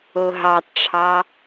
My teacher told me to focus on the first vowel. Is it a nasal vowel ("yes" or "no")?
no